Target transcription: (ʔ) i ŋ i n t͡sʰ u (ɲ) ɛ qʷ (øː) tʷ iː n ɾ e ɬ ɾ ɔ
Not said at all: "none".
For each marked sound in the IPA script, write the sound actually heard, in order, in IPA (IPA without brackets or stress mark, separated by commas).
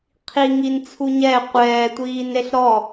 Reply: qʰ, ɲ, ɛː